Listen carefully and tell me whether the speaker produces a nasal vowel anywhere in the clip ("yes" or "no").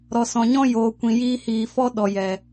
yes